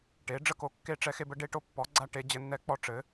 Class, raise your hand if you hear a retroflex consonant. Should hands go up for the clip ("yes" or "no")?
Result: yes